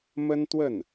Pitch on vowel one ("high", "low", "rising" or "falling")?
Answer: high